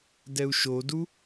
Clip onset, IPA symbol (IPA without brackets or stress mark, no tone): d